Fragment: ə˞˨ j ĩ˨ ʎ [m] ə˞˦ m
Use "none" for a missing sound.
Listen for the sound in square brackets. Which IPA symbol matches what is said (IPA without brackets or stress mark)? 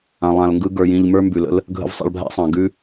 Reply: m